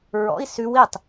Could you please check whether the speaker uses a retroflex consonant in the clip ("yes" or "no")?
no